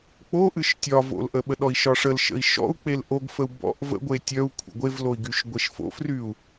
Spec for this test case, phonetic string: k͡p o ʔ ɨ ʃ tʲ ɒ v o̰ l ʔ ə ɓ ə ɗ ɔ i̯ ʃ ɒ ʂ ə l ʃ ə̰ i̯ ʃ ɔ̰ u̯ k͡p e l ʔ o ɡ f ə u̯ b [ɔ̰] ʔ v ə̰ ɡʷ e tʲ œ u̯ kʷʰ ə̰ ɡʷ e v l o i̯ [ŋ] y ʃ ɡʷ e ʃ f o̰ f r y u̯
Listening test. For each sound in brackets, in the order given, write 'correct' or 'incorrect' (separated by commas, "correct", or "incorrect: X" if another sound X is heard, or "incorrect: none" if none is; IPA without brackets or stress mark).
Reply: correct, incorrect: ɡ